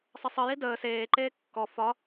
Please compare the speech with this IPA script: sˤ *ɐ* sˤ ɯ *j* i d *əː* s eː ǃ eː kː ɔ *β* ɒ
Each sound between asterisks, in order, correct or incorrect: incorrect: ə, correct, correct, incorrect: f

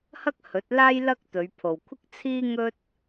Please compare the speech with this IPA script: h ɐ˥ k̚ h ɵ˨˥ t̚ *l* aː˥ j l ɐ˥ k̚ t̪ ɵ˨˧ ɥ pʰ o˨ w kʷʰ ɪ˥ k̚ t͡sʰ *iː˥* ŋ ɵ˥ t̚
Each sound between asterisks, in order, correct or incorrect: correct, correct

